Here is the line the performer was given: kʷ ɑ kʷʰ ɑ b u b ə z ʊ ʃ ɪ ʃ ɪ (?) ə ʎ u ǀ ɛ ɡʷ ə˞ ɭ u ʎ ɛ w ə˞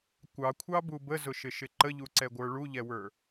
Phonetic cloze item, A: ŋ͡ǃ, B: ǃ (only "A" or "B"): B